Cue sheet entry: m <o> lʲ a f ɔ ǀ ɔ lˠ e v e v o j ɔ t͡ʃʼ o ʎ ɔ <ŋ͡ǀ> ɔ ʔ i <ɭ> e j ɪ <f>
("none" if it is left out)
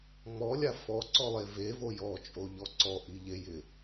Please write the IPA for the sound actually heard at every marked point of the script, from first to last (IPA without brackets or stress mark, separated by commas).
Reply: ɔ, ǀ, ʎ, none